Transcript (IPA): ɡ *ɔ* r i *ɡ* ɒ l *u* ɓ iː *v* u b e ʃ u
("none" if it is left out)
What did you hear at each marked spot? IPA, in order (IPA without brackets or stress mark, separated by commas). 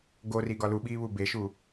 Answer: o, ɡ, u, β